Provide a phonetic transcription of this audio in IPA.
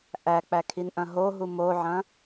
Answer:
ʔ æ k͡p æ kʰ i n ʔ ɐ̃ ɦ o ɦ u m o ʕ ɐ̃

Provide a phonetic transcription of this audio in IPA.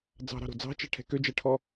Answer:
d͡z ɑ̤ ɾ ɑ̤ ɾ o̤ d͡z ɑ̤ t͡ʃ ɛ̤ ʈʰ ɛ̤ k ø d͡ʒ ɛ ʈʰ ɔ

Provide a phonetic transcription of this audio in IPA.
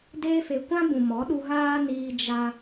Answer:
d eː˦ f e˧ kʷ ã˦ b ũ˨ m ɔ˨˦ ɗ u˧ ɣ aː˦ n iː˧ d͡ʒ a˦

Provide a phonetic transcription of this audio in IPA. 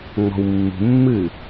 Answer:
ŋ͡m ɔ̤ w mː ṳ mː ɨː

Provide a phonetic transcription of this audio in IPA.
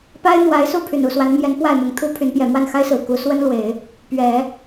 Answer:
p a˥ ɪ̯ n̪ w a˧˥ ɪ̯ s u˥˩ pʰ y˨˩ n u˥˩ s w a˧˥ n m j ɛ˧˥ n p w a˥˩ ɪ̯ m ʊ˧˥ ŋ t̪ʰ u˥ pʰ y˧˥ n p j ɛ˨˩ m w a˥˩ n x a˥ ɪ̯ s ɹ̩˨˩ k u˧˥ s w ə˥ n l w e˨˩˦ ɪ̯ | p ɥ ɛ˨˩˦

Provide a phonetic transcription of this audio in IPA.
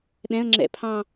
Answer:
ɗ ɛ̃ ə̯ ŋ͡ǁ ɛ̰ pʰ ɑ̃

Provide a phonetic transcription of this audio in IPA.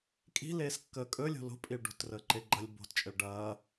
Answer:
kʼ i̤ l eː s kː əː kʼ ɵ lʲ o̤ l o̤ pʼ i ɭ ɖ o̤ t r əː ǃ e ɡ͡ǃ ɐ lʲ b o̤ t t͡ʃʼ ɘ ɭ ɖ ɐː

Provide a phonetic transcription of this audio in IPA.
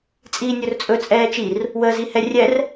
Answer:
t͡sʼ iː nʲ ɵ r t͡sʼ ɵ t͡sʼ ɛː t͡ʃ i r | w əː z i h ɛ rʲ ɛ r

